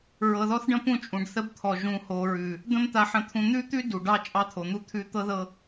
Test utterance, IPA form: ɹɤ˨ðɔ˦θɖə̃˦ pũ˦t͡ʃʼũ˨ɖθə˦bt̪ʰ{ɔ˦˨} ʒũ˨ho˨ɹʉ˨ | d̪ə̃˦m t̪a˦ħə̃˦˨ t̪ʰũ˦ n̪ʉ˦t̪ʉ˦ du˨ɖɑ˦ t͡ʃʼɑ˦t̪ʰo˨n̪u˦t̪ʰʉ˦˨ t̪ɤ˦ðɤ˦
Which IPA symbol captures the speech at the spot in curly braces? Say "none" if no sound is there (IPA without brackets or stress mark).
ɔ˨